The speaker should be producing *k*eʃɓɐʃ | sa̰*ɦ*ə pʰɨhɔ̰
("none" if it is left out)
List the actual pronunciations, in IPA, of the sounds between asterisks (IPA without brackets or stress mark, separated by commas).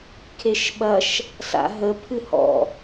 kʰ, ɦ